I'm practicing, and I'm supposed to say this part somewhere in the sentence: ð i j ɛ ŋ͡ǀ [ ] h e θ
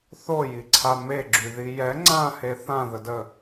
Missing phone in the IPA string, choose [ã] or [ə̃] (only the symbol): ã